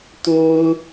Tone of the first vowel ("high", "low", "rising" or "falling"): high